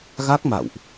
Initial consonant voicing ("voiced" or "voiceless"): voiced